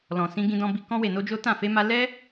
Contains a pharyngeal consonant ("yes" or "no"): no